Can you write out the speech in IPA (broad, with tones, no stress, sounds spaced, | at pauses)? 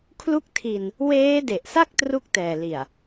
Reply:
kʰ l u˥˩ k̚ tʰ i˧ n | w eː˦˥ d e˨˩ ʔ s a˥˩ k̚ t r u˥˩ k̚ t ɛː˨˩ l i˨˩ a̯